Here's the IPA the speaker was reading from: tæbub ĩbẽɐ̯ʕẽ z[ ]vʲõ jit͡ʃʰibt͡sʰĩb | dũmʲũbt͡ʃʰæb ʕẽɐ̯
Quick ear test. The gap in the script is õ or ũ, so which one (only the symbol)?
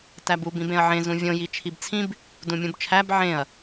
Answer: ũ